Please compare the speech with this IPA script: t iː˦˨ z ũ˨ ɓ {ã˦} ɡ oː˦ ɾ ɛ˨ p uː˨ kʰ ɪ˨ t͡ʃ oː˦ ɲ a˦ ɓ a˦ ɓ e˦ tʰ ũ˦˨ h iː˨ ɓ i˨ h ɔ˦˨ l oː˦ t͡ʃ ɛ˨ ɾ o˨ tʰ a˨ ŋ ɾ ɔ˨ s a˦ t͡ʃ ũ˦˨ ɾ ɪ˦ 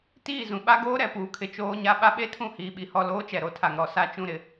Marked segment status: incorrect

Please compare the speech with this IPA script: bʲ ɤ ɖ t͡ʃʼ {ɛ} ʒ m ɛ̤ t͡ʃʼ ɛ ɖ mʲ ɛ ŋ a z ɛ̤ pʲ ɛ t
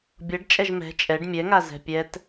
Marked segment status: correct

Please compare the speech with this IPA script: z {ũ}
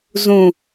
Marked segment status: correct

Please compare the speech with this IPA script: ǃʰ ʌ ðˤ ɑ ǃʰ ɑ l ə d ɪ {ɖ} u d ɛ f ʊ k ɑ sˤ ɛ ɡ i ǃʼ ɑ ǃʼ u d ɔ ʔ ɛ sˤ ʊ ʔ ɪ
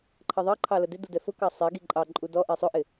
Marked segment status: incorrect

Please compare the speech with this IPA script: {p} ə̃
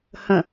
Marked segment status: incorrect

